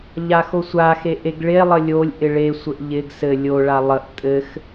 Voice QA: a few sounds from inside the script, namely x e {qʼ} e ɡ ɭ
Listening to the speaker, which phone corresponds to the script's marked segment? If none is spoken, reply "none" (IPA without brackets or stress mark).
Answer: ʔ